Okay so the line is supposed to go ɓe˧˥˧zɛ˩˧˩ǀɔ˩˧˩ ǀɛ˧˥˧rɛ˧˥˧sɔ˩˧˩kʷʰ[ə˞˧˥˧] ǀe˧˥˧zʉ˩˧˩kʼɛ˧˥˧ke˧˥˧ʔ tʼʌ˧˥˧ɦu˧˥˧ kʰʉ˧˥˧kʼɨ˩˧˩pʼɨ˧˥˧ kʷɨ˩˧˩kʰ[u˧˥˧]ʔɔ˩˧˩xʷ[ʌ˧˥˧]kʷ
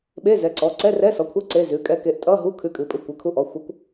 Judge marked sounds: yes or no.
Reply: no, yes, yes

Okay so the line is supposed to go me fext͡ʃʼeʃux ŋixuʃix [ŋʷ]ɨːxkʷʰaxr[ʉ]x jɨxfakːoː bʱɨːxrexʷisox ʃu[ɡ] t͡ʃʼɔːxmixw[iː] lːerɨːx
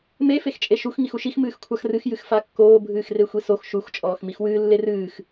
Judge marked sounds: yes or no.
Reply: no, no, no, no

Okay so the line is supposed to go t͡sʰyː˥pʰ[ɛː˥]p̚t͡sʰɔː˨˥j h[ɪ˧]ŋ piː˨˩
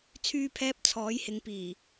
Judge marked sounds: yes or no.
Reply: yes, no

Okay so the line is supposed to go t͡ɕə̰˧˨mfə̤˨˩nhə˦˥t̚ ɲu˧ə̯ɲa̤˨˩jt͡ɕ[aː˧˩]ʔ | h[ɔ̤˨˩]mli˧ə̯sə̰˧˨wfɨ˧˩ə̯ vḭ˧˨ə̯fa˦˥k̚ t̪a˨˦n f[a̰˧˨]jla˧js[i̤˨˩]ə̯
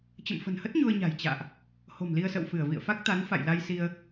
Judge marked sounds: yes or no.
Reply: no, no, yes, no

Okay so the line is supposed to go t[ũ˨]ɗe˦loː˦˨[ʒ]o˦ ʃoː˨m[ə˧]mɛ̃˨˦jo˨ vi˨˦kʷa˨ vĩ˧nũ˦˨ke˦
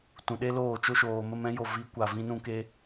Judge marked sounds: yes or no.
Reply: yes, no, yes

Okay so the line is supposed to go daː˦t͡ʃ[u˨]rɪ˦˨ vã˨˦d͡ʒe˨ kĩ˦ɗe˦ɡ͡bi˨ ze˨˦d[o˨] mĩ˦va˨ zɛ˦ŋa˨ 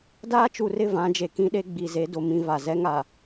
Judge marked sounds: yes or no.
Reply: yes, yes

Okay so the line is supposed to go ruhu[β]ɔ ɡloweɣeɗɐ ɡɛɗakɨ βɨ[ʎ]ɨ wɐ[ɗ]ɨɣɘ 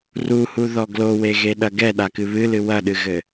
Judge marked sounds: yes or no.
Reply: no, no, yes

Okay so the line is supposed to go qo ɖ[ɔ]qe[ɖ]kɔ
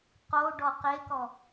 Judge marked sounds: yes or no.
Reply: yes, no

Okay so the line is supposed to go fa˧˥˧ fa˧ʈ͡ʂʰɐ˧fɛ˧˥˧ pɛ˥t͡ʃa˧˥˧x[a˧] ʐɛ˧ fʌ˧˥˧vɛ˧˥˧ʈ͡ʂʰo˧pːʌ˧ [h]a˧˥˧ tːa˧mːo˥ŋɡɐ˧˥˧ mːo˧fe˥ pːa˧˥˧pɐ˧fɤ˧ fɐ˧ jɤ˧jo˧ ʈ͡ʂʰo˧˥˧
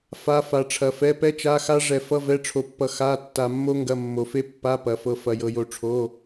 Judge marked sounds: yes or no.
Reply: no, no

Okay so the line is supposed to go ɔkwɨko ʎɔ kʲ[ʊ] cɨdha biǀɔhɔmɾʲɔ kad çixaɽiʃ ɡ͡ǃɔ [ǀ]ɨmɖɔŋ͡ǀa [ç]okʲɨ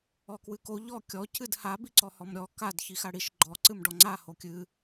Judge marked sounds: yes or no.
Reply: no, yes, no

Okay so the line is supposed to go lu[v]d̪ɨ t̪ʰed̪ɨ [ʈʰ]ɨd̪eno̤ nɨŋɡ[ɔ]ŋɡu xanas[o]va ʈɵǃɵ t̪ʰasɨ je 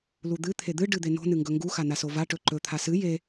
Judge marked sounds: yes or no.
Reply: no, no, no, yes

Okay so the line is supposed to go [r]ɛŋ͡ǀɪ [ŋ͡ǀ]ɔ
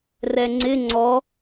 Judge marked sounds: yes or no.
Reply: yes, yes

